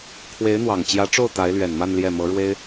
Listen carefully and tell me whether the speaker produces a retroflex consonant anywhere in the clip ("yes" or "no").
yes